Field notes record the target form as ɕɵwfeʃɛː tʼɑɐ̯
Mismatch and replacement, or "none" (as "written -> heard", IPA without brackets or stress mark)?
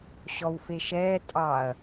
ɵ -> ɔ